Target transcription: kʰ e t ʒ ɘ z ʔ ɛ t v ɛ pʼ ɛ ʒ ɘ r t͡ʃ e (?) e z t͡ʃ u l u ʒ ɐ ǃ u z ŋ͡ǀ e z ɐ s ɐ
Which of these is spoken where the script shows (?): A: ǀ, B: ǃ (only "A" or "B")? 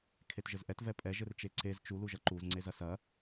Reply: A